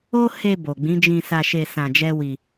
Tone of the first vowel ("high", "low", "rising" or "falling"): high